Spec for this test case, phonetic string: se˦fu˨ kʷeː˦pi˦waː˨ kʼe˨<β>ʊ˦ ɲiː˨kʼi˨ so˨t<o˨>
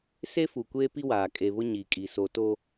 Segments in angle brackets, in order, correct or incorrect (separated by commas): correct, incorrect